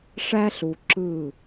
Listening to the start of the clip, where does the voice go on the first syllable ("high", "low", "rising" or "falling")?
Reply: high